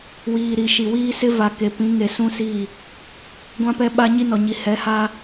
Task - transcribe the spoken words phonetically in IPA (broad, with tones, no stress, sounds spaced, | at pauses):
w iː˨ ɾ i˨ ʃ i˨ w iː˦ s ɪ˦ v a˨ k e˨ p ĩ˨˦ ŋ e˨ s ũ˦ s i˦˨ | ɡʷ ã˦ p ɛ˦ ɓ a˦ ɲ i˦ n ɔ˨ ɲ i˨ h ɛ˨˦ h a˦